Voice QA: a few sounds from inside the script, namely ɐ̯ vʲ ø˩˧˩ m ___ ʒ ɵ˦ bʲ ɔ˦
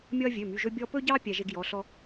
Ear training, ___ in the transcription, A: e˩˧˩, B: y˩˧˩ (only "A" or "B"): B